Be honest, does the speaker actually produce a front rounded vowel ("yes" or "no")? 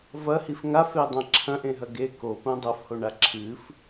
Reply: no